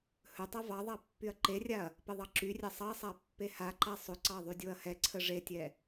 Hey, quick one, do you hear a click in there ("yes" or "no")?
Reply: yes